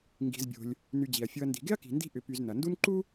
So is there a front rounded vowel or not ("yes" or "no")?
yes